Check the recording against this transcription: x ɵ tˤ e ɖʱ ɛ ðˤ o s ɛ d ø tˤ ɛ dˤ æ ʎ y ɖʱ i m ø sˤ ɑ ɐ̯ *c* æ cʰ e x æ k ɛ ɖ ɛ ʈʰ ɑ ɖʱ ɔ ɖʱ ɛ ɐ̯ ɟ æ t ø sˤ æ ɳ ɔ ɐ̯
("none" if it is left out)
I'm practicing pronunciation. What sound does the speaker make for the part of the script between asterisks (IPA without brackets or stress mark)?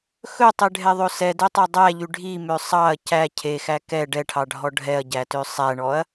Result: c